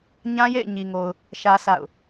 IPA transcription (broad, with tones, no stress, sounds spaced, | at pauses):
ɲ ã˦ j ḛ˦˨ ɪ̯ ɲ i˨ ŋ o˨ ʊ̯ | ʃ ä˦ s a̰˦˨ ʊ̯